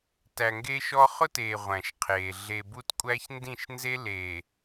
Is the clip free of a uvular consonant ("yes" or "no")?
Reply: no